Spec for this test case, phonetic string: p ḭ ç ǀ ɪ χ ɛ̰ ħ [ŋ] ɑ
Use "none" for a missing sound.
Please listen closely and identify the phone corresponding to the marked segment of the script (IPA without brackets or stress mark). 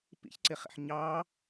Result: ɲ